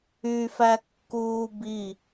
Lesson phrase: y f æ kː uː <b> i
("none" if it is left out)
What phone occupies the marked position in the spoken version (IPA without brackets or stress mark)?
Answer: b